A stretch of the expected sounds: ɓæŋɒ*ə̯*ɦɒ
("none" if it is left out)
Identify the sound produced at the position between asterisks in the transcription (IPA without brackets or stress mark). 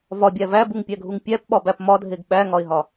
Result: ɪ̯